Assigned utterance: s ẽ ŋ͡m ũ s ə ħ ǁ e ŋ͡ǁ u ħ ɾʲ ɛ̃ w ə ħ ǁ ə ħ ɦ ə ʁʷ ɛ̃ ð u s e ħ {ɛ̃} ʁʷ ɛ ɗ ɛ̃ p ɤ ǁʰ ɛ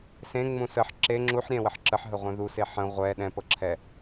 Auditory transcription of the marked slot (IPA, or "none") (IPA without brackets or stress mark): ə̃